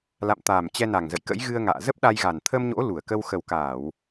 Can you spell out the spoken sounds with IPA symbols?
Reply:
la̰˧˨mt̪aː˨˩m t͡ɕɛ˧na˨˩ŋzə̰˧˨j kə̰˧˥jɣɨ˧ə̯ŋa̰ː˧˨ zə˦˥p̚ɗa˧jɣa˨˩n t̪ʰə˧mɲo̰˧˥ lu˧˩ə̯kə˧w xə˨˩wkaː˧˩˨w

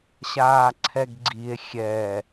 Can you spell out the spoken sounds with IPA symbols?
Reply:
ɕaːǀʰɛɡɡ͡ǀie̯ xʲɛ

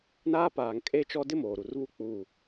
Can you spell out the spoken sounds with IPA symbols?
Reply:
naː˦paː˨ŋ kʼe˦t͡ʃɔ˦ dɪ˦moː˨ɾu˨rβu˦ k͡puː˦˨

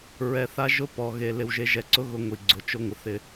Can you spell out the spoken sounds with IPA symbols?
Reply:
ɹɛ˨θa˦ ʒʊ˦ pɔ˨ɣe˨ lɪ˨wʒe˨ʒɛ˨ǀʊ˦ ɣʊ˦ŋʷi˨ɡ͡ǀʊ˨ t͡ʃʊ˦ŋʷɪ˨θɪ˦

